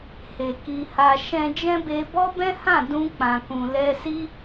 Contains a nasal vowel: yes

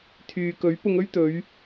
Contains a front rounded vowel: yes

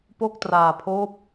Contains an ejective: no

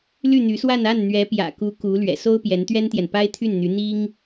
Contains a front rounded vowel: yes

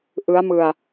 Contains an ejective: no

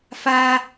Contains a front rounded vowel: no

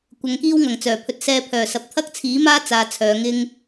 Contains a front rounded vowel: yes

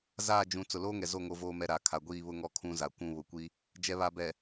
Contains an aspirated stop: yes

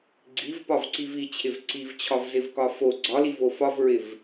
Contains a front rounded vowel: no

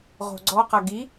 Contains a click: yes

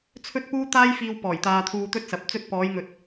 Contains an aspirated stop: yes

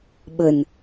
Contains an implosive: yes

